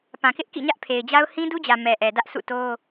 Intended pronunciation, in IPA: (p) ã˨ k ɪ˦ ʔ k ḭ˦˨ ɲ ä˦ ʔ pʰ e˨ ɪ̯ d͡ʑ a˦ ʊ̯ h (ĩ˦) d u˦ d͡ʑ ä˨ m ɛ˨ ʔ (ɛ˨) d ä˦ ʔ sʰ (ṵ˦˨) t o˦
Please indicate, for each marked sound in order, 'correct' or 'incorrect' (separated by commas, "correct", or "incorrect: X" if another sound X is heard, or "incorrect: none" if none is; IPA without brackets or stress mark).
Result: correct, correct, correct, correct